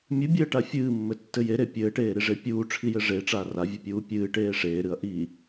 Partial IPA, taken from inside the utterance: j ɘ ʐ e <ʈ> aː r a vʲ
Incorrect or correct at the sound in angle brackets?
incorrect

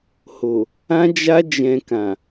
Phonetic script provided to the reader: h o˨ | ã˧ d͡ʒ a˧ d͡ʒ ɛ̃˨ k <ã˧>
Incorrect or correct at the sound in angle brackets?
incorrect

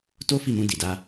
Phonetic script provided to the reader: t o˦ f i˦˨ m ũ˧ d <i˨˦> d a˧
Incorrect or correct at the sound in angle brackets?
incorrect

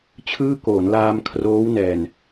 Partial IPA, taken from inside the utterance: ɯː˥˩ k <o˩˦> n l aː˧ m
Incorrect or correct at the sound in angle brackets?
incorrect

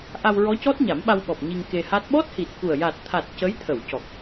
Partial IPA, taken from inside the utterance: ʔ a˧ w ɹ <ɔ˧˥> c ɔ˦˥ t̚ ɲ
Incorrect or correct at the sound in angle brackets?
correct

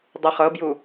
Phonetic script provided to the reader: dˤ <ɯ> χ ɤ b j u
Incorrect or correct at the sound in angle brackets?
correct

